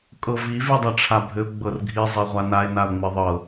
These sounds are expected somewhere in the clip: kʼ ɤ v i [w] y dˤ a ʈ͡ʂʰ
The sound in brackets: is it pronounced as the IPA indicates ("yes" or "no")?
no